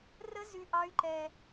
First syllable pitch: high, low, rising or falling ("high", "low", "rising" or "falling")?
high